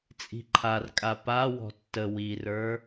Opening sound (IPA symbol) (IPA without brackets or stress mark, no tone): t͡sʼ